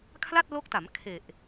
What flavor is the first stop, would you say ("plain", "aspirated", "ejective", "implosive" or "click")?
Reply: aspirated